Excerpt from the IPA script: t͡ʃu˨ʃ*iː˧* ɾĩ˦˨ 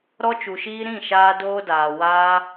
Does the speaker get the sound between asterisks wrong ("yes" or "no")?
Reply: no